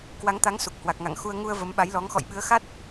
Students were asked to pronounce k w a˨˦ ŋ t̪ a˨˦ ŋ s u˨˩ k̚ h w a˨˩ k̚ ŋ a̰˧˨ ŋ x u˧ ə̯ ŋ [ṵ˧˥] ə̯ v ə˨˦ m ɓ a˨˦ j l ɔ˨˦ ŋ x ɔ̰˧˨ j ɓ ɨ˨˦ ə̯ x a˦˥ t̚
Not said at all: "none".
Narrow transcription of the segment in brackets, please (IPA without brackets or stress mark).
u˧